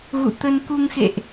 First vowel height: high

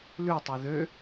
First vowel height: high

